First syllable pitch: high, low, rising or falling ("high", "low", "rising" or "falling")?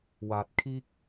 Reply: rising